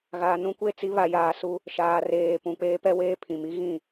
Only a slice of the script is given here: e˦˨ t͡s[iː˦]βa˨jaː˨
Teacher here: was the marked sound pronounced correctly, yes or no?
no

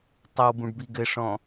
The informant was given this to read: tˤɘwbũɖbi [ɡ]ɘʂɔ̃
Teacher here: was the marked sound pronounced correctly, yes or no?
yes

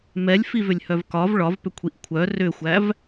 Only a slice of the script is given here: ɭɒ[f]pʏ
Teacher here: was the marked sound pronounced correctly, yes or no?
no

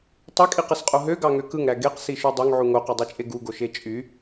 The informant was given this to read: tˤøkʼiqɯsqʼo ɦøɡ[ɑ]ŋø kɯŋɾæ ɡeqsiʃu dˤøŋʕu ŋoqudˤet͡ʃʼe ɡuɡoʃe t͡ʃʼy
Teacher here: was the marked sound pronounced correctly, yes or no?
yes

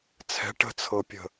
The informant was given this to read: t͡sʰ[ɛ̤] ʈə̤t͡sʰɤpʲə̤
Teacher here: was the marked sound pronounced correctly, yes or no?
yes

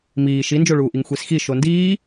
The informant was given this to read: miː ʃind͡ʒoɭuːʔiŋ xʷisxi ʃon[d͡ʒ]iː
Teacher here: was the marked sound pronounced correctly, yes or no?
no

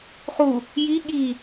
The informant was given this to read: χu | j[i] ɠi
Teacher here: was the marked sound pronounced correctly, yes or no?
yes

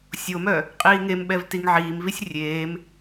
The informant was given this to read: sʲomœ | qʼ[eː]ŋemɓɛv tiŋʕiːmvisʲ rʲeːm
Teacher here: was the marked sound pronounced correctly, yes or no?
no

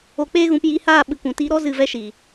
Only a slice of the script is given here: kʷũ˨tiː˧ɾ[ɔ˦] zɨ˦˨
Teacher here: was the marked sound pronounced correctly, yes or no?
yes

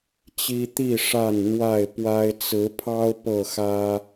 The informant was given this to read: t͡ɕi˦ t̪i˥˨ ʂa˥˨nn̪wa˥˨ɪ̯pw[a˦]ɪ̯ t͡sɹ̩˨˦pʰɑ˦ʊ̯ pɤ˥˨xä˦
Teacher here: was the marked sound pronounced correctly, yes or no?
yes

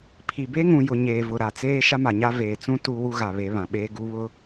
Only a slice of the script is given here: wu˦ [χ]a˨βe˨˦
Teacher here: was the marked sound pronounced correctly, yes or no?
no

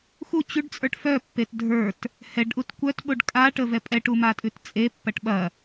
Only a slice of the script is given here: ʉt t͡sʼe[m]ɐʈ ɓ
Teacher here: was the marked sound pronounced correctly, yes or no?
no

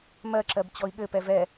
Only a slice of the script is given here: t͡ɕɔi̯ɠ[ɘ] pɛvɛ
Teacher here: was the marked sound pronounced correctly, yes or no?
yes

